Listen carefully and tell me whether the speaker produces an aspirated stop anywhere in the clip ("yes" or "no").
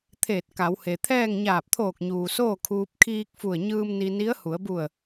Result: yes